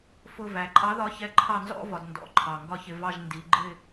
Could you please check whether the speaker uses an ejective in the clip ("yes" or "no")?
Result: yes